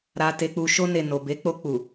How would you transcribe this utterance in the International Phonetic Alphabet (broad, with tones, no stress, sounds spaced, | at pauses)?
ɾ a˧ t e˧ k͡p u˧ ʃ o˧ n e˨ n o˨ b e˨˦ k͡p o˧ k͡p u˨